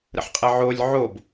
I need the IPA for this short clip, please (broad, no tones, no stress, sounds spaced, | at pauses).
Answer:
ɾ ə̰ ħ qʼ ə ʕ o lʲ ʕ o b